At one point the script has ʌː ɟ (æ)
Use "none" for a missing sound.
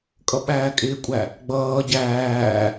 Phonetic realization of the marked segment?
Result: æː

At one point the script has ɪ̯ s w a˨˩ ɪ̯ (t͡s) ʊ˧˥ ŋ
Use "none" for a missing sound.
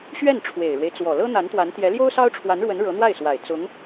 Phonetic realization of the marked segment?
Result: t͡s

